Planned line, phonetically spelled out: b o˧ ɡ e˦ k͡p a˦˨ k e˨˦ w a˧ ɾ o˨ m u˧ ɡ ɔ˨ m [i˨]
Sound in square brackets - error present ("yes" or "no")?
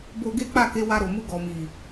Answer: no